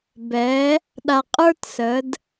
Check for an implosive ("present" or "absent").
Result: present